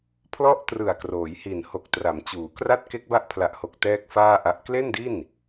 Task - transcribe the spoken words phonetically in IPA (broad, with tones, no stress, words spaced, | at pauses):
pʰlɔ˥˩ʔtrɯ˨˩a̯kroː˩˦jhi˨˩n ho˨˩k̚tra˩˦mt͡ɕuː˩˦ kra˥˩t̚ke˦˥k̚ba˦˥ʔ pʰla˨˩ʔho˨˩k̚ tɛː˥˩k̚faː˥˩ʔa˦˥ʔ kle˥˩ndi˥˩n